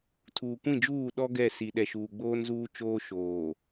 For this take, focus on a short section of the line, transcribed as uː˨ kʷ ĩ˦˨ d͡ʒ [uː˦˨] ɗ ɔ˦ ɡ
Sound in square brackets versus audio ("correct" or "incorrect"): correct